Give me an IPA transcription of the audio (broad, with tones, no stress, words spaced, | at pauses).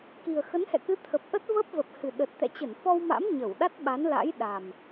ki˨˩ə̯xə˨˦nhɛ̰˧˨kɨ˨˦ t̪ʰə˨˩p̚ʔə˦˥t̚və˦˥p̚ və˨˩p̚hɨ˨˩ɗə˨˩t̚ t̪ɛ̰˧˨t͡ɕə˧˩nfɔ˧wma̰˧˥m ɲə˧˩wɗa˦˥t̚ɓa˨˦nla̰˧˥j ɗa˨˩m